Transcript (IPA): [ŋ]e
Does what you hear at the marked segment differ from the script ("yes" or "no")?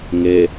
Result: no